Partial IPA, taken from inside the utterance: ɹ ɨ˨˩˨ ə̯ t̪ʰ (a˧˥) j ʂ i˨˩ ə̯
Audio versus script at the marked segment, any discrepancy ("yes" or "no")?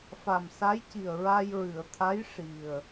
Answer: no